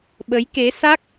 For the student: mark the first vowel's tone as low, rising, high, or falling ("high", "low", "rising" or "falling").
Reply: rising